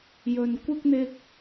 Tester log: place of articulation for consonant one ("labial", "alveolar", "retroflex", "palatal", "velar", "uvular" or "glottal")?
palatal